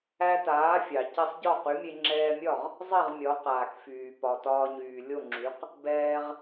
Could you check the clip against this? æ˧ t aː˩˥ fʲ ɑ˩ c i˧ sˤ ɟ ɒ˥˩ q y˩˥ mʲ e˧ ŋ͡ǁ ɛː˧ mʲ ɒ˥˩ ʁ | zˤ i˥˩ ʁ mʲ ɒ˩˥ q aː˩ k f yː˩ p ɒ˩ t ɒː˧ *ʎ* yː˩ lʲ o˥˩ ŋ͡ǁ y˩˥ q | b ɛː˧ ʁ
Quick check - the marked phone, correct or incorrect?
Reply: incorrect